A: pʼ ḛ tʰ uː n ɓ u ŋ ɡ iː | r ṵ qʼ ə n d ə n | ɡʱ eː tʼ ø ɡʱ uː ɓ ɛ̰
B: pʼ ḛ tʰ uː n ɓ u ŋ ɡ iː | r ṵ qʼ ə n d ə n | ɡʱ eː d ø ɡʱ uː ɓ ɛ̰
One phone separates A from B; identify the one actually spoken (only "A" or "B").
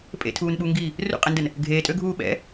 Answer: A